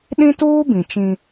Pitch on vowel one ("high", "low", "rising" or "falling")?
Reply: high